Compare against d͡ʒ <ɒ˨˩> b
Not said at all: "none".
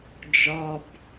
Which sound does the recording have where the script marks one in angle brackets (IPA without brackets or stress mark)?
ɒ˨˩